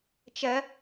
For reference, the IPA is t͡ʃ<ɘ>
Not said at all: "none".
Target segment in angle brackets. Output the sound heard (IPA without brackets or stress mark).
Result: ɛ